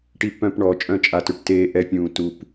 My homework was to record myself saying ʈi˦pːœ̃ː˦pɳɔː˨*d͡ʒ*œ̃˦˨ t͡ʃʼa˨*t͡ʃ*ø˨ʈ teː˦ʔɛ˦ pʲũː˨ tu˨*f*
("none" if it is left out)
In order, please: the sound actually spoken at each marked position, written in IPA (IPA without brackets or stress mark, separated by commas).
t͡ʃʼ, t, p